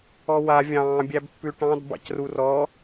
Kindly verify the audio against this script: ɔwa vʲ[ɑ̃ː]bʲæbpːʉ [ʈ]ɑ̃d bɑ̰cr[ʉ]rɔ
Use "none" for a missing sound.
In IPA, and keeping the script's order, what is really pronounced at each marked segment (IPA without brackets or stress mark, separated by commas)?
ɑ̃ː, ʈ, u